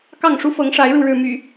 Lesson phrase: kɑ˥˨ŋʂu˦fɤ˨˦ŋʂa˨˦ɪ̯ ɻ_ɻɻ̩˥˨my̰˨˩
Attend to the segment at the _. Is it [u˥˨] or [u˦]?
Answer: u˥˨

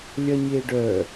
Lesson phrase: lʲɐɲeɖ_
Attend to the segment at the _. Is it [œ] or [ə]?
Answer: œ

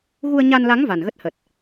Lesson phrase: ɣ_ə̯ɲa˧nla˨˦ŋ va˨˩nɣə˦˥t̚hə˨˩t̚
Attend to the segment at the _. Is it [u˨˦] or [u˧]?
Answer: u˧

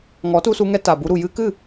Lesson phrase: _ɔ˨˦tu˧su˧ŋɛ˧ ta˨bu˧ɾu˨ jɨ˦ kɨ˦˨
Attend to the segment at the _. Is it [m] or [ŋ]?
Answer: ŋ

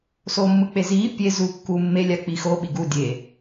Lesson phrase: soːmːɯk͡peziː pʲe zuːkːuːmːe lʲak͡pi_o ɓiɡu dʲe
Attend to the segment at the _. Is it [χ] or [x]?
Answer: x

